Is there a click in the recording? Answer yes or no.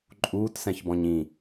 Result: yes